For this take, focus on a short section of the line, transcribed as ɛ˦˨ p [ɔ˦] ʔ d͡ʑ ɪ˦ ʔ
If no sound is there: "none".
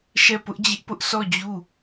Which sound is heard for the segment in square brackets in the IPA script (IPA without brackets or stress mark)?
ʊ˦